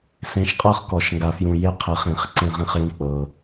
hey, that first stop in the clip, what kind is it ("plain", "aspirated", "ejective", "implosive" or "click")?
ejective